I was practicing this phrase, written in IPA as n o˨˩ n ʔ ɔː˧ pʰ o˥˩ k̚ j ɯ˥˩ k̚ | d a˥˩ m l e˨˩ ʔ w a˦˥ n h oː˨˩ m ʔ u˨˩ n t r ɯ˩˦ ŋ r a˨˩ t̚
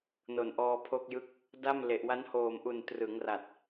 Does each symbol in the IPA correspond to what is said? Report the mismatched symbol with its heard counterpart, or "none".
none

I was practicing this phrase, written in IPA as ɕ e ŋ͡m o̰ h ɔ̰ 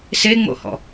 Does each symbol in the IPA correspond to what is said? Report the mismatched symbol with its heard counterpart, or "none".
ɕ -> s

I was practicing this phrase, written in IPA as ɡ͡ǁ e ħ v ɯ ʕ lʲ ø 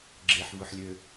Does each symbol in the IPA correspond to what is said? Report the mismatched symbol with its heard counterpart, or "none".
ʕ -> ħ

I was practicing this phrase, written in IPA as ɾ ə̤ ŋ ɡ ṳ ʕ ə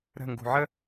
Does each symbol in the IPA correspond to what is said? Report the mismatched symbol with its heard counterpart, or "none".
none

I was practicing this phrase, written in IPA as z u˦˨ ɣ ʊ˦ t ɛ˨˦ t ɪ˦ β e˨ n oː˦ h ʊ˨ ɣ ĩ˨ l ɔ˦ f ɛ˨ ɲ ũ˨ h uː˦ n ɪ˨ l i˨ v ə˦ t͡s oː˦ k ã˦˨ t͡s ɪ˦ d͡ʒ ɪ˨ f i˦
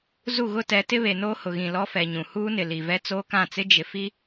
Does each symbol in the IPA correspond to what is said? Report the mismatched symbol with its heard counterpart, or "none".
ə˦ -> ɛ˦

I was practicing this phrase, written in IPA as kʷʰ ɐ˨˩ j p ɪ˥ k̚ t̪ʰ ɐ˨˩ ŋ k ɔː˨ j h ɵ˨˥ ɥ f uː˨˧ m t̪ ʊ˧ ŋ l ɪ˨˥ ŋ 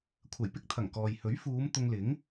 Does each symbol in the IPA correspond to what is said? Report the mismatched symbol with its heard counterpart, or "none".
none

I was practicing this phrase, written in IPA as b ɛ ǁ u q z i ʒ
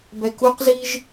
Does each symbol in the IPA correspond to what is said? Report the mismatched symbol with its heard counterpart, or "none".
ǁ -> k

